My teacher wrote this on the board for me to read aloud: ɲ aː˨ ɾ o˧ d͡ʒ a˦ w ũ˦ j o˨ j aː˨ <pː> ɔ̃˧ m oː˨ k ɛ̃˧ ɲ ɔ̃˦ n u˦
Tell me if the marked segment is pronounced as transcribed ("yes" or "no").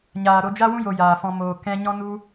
no